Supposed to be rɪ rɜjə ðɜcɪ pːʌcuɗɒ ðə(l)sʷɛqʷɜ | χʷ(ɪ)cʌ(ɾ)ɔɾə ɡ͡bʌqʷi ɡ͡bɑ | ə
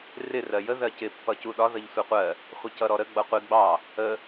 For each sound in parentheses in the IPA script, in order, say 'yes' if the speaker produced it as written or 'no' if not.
no, yes, yes

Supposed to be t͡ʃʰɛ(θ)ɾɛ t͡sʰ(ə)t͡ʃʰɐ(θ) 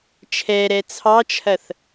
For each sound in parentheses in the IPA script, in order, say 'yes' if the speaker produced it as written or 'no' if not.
no, no, yes

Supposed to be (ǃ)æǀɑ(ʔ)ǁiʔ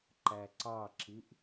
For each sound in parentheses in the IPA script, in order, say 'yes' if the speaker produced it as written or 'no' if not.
yes, no

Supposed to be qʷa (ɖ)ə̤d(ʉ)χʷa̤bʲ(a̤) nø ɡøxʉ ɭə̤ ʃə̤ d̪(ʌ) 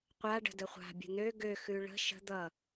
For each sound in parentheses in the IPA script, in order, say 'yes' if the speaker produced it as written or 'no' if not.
yes, no, no, yes

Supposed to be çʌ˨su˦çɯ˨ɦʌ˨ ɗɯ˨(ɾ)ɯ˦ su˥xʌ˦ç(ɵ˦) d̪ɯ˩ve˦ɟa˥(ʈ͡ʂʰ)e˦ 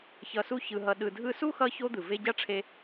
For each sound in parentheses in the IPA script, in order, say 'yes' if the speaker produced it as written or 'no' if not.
no, no, yes

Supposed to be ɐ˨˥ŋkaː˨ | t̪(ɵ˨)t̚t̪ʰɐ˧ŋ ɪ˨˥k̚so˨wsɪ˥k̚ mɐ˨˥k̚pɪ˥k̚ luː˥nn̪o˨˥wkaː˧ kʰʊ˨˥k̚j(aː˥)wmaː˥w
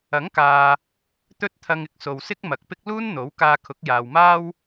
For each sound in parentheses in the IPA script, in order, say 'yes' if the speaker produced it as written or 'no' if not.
no, no

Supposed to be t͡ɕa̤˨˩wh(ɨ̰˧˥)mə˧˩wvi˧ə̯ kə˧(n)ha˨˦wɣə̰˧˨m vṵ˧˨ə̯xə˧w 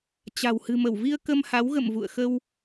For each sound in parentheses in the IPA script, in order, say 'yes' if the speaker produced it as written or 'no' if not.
no, no

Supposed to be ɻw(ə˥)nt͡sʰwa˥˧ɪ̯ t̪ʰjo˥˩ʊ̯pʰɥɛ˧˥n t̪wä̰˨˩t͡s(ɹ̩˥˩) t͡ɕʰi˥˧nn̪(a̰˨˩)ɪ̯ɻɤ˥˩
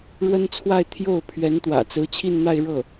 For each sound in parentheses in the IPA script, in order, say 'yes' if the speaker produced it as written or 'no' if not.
yes, no, no

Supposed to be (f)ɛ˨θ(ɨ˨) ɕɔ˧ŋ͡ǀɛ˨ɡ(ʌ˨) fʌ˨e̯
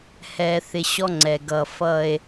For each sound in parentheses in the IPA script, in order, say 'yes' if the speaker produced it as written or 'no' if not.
no, no, yes

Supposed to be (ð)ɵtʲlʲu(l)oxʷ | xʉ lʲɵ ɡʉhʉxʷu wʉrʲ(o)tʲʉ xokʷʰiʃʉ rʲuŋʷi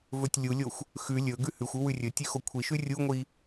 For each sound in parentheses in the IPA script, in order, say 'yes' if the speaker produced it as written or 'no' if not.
no, no, no

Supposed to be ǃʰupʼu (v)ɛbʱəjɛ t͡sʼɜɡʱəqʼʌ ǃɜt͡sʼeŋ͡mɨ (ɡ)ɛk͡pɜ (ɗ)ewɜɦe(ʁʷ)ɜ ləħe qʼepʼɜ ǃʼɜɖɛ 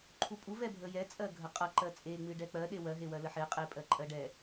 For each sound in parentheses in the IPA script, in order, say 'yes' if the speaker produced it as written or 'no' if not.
yes, no, yes, no

